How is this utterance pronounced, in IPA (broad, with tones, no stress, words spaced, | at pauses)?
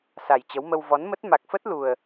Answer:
sa˨˩jt͡ɕə˨˦wmə˧w vɔ˨˦nmə˦˥t̚ ma˨˩k̚fə˦˥t̚ lu˨˩ə̯